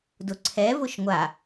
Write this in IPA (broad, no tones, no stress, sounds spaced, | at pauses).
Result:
d ʊ ǀʰ ɛ v ʊ ʃ ŋʷ a